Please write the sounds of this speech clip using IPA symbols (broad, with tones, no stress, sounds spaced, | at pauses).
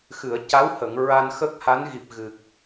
x ɨ˨˩˨ ə̯ c a˧˥ w h ə˨˩˨ ŋ ɹ a˧ n x ə˦˥ k̚ h a˧˥ n ɣ i˨˩ p̚ ɣ ɨ˨˩ k̚